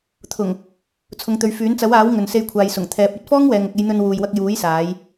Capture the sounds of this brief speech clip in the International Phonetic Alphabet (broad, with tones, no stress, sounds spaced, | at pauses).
t̪ʰ ʊ˨˩ ŋ | t͡sʰ ʊ˨˧ ŋ t̪ ɵ˨˧ ɥ f yː˨˥ n t͡s ɐ˨˥ w aː˨˥ w ŋ ɵ˨ n s e˧ j kʷʰ aː˨ j s ʊ˨˩ ŋ t̪ʰ ɛː˨˥ p̚ ɐ˨˥ t̚ f ɔː˥ ŋ w ɛː˨ ŋ ʊ˨ k̚ e˧ j n̪ ɵ˧ n w uː˨ j w ɐ˧ k̚ j uː˨˥ j s aː˨˧ j